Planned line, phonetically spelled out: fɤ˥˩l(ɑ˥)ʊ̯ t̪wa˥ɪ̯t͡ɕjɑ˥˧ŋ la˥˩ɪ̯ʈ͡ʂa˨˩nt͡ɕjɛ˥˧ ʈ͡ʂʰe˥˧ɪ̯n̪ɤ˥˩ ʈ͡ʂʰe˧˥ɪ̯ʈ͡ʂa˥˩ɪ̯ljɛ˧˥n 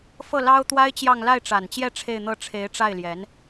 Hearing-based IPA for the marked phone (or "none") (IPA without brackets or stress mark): ɑ˥